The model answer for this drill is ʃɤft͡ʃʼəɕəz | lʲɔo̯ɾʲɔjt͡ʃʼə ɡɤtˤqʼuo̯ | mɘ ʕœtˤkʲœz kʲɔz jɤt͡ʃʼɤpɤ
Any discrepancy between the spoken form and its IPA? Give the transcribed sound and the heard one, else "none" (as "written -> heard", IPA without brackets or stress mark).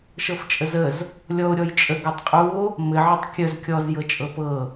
ɕ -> z